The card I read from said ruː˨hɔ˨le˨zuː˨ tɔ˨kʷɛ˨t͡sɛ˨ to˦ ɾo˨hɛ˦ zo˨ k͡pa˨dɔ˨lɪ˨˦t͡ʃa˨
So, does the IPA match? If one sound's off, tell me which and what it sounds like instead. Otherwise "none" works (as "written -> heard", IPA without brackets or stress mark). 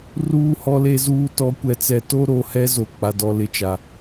none